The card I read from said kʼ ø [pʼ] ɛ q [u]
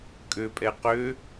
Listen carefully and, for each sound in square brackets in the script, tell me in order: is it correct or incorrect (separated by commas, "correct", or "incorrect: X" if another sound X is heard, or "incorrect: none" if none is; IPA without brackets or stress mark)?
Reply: correct, incorrect: ø